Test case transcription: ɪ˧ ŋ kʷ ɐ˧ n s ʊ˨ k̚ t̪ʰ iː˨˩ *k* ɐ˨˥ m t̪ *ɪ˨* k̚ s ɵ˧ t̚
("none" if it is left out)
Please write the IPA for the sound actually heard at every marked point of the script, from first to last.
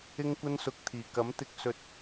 k, ɪ˧

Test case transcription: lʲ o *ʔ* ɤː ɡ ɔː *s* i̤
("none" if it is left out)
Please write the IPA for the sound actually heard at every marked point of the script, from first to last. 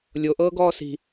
ʔ, s

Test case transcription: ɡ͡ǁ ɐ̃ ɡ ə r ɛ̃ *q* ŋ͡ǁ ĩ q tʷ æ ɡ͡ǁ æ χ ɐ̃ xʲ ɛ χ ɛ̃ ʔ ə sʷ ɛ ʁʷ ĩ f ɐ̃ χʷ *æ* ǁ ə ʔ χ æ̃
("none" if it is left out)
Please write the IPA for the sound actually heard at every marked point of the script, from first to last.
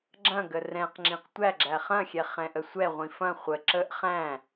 q, ə

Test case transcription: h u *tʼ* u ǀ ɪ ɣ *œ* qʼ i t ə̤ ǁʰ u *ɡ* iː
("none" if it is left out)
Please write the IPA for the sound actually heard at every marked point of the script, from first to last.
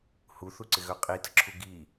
θ, œ, ɡ

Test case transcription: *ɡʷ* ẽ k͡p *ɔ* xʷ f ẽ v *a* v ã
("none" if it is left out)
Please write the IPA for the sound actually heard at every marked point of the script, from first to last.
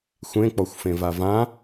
xʷ, ɔ, a

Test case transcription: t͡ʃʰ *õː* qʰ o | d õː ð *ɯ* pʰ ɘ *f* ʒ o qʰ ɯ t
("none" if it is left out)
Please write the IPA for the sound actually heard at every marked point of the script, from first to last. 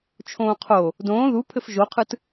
õː, u, f

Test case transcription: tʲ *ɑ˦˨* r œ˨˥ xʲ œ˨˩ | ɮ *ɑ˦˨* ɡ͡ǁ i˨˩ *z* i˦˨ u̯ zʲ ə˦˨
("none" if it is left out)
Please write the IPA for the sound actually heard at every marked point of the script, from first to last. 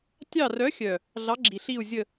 ɑ˦˨, ɑ˨˥, ɬ

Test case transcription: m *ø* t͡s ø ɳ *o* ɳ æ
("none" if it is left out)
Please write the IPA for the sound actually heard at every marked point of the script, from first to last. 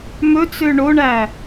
ɵ, o

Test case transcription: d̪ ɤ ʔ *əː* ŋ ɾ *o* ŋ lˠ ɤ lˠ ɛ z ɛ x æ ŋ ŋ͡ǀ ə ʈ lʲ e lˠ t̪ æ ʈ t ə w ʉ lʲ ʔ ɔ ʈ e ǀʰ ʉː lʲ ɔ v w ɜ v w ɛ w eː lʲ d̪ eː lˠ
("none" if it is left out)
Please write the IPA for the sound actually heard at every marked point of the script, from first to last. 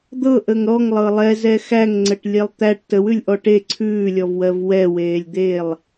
ə, ɔ

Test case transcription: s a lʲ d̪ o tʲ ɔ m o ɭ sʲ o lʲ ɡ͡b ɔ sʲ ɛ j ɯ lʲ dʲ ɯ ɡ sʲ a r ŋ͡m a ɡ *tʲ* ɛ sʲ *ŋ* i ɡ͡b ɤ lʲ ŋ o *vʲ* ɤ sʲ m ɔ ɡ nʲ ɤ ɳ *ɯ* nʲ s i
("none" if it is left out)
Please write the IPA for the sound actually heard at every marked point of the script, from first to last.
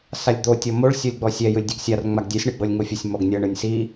dʲ, ɳ, fʲ, ɯ

